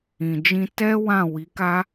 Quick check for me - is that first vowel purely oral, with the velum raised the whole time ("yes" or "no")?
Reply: no